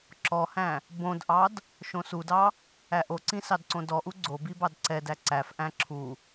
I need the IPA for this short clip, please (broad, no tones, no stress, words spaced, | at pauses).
ǁɔhæ̃ | bõdʔɑd | ʃõsudɑ | æʔoǀĩ sɑdǀõdɔʔu ɡ͡ǀobi bɑdǀɛdæ ǀæfʔæ̃ ǁʰu